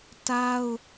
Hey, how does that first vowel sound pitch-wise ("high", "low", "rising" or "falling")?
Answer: high